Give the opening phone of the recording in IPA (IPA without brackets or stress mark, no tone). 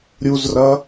ɾʲ